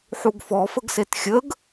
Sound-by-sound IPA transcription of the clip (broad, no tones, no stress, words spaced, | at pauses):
ħuɡfɔ fəɡsetxʲəɡ